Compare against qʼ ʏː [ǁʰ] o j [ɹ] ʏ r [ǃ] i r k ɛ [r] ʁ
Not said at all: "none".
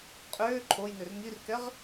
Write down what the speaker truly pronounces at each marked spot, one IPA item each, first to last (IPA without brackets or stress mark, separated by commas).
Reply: ǃʰ, n, ŋ, none